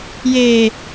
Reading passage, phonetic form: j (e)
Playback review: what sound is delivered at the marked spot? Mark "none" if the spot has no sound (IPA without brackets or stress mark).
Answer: e